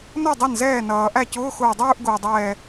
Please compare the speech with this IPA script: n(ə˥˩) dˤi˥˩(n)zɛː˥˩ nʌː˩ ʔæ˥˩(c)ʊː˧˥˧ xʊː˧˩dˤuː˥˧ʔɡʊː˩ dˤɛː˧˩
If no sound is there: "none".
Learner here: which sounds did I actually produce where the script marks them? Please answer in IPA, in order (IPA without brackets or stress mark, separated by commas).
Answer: ʌ˥˩, n, c